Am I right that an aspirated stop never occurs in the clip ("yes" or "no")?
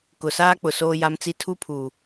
no